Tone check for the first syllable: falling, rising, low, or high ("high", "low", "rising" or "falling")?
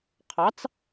rising